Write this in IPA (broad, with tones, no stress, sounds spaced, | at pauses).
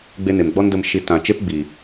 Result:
ɡ͡b e˦ n e˨ m ɡ͡b ɔ˦ n d ə˧ m ʃ i˨˦ t ã˨ t͡ʃ e˦ p ɡ͡b iː˨